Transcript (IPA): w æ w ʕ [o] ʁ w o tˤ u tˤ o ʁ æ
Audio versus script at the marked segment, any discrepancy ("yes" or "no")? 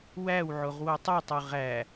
no